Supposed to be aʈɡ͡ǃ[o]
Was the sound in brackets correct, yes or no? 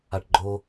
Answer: yes